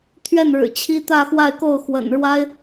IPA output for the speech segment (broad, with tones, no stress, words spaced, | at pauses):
t̪ʰɥɛ˥˩nɻɻ̩˨˩ t͡ɕʰi˥t̪ä˥˧xwa˥˧ɪ̯ko˥˩ʊ̯ xwə̰˨˩nɻwa˥ɪ̯